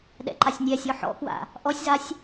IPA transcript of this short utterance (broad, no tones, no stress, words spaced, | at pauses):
ɗɛ̰ǃasʲnʲɛsʲɔ ħɔ̰kwa̰ | ʔɔsʲzasʲ